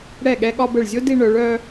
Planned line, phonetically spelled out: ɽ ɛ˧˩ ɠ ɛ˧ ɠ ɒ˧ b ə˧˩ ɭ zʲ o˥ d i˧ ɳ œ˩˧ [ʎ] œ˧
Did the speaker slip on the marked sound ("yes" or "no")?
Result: yes